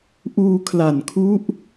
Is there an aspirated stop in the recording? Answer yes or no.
yes